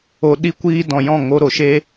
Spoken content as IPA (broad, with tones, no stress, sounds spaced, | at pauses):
o˧ ɗ i˦ kʷ iː˦ d ɔ̃˨ j ɔ̃˦˨ ŋ o˧ ɾ o˨ ʃ e˦